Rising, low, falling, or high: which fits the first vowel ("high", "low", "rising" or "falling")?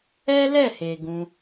high